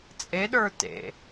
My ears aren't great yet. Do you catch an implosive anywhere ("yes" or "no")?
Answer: yes